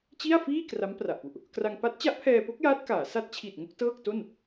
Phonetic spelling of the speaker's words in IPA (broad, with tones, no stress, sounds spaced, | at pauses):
t͡ɕ i˥˩ a̯ f iː˥˩ k r a˦˥ m p r a˨˩ ʔ p u˨˩ ʔ | k r a˧ ŋ p a˦˥ t̚ t͡ɕ a˦˥ ʔ pʰ ɛː˧ p o˦˥ k̚ j aː˦˥ t̚ k aː˩˦ s a˦˥ t̚ t͡ɕʰ i˨˩ t̚ ŋ o˥˩ k̚ t ɤː˥˩ k̚ t o˥˩ n